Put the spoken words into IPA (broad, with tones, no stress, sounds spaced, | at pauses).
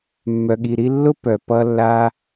mː œ˨ ɠ i˨ ɾ i˧ lː ʊ˦ p œ˨ p ʌ˧ lː a˦